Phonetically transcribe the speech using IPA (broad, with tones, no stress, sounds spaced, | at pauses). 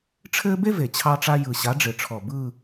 ʈ͡ʂʰ ɘː˥ b e˥ v e˨˩ t͡ɕʰ ɑ˥ ʈ͡ʂ a˥ j ɯ˨˩ ɕ a˨˦ ɖ͡ʐ ɪ˨˩ ʈ͡ʂʰ ɔ˨˩ b ɯː˥˧